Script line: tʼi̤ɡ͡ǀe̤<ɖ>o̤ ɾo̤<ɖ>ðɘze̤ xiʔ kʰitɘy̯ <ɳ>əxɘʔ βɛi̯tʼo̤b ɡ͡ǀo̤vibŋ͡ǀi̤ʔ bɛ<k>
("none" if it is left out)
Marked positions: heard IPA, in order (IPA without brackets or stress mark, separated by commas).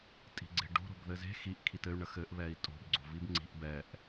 ɖ, b, ɳ, ʔ